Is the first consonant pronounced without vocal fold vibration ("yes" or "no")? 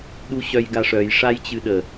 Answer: no